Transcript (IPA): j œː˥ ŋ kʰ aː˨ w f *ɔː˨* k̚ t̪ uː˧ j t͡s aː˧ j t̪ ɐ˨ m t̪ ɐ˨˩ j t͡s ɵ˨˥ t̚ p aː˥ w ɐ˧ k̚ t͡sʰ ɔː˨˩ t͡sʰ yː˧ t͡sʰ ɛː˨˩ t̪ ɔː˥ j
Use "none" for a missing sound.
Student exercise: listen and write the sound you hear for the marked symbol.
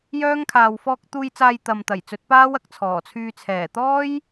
ɔː˧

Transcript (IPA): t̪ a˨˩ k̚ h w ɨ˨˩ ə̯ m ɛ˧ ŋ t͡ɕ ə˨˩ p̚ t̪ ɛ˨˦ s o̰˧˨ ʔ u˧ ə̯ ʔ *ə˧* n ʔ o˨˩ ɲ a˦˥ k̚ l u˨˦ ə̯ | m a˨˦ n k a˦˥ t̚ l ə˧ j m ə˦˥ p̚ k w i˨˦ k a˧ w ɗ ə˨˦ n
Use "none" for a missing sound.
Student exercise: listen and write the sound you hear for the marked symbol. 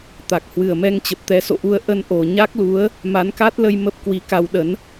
ə˧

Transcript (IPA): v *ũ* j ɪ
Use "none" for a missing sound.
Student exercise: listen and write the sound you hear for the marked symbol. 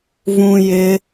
ũ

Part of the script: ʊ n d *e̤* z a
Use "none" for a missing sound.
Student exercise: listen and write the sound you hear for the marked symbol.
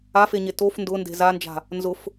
e̤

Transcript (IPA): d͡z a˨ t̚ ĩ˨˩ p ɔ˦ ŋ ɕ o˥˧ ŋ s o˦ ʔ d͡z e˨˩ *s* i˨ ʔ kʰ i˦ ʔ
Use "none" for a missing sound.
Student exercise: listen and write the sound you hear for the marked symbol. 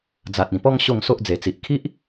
t͡s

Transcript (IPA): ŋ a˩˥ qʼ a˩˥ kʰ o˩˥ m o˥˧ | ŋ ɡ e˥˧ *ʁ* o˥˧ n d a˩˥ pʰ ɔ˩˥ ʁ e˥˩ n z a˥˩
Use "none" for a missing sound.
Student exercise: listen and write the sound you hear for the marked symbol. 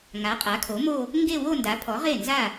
w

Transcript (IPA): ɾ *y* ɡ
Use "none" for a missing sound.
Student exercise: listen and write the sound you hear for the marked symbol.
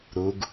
u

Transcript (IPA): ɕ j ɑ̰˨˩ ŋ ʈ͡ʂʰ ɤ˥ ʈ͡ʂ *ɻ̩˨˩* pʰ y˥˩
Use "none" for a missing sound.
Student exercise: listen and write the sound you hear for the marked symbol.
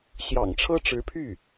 ɻ̩˧˥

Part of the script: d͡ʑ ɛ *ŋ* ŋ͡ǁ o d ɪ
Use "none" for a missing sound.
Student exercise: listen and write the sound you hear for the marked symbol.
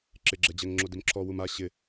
ŋ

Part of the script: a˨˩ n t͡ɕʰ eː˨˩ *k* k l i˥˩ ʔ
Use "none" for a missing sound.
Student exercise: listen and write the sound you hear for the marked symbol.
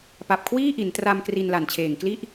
ŋ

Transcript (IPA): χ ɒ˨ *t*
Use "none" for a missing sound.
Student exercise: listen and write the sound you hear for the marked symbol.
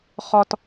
t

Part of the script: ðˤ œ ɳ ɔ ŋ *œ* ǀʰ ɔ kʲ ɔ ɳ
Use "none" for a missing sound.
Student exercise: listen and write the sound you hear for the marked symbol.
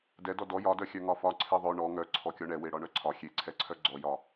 œ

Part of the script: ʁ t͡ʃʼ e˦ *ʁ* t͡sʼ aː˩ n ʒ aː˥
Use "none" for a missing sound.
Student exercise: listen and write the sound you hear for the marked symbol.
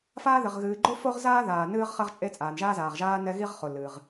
none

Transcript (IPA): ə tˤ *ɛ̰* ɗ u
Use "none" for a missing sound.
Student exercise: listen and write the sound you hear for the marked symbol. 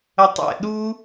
ɛ̰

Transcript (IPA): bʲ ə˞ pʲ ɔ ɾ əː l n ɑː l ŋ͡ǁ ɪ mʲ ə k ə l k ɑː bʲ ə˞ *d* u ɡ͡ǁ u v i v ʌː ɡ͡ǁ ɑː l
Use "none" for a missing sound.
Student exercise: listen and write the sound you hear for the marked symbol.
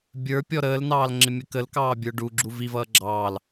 ɖ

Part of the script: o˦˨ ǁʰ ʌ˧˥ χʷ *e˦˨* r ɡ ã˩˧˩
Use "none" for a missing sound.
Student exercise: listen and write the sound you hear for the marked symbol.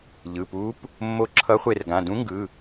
e˦˨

